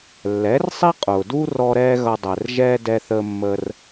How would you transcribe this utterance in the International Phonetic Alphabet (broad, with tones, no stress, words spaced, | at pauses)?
lːɛ˩˥rsˤi˥ qʼʊː˩du˥rɔ˧ ɾɛː˥ɣʌ˧dˤɛ˩rʒɛː˥ dɛ˧θəː˧mːəː˧r